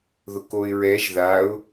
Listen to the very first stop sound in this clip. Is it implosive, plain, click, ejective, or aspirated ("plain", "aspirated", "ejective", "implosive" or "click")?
plain